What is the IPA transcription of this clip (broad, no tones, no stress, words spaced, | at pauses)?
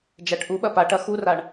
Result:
d͡ʒæʈʔuɓɐ paʈɐ xuraɳ